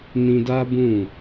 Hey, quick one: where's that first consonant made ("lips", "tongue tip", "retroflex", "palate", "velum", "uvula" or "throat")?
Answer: tongue tip